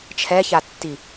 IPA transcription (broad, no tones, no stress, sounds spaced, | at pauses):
t͡ʃʰ ɛ ç a tː i